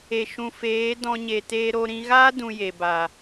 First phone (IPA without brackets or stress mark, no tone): e